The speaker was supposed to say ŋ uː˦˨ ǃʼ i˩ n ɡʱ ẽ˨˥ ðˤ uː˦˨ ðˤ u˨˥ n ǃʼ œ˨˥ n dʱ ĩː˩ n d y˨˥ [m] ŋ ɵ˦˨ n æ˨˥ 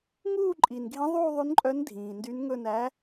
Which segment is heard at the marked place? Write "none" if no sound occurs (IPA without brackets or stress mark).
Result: n